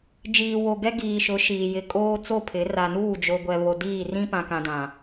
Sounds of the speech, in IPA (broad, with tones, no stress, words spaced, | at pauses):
d͡ʒiː˨wo˨ ɡɛ˦ɡiː˨ʃʊ˨˦ ʃiː˨jɪ˨ kʼoː˦t͡so˦˨pʰɪ˨˦ ra˨nuː˦˨d͡ʒo˨ ɡʷɛ˨βo˨ diː˦˨rĩ˦ pã˨kã˨dã˨